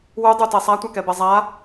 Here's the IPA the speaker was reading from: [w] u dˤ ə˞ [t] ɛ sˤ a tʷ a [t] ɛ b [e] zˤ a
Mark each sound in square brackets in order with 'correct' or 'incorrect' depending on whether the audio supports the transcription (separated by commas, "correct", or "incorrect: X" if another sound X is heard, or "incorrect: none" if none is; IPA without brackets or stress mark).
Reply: correct, correct, incorrect: k, incorrect: ɛ